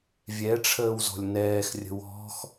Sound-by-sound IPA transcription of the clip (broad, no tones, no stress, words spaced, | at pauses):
vʲɛʈ͡ʂʰəːw zɔ̤lʲnɛːxrʲə̤ wɔ̤x